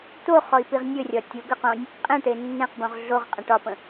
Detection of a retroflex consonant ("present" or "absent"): present